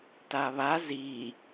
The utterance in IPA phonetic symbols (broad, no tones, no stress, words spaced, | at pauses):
taβa zi